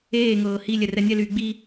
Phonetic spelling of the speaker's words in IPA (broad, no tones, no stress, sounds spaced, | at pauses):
eː ŋ ɤː h i lʲ ɛ r ɛ nʲ ɛ l yː ɡ͡b i